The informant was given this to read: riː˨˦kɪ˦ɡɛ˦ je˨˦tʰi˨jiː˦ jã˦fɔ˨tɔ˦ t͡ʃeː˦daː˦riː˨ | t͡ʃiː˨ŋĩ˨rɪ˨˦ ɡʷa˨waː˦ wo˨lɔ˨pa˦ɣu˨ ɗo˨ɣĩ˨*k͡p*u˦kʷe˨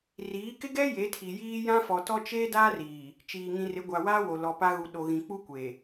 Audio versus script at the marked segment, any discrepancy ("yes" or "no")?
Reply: no